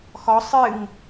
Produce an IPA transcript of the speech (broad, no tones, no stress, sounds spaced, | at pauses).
x ɔ sˤ ɨ ŋ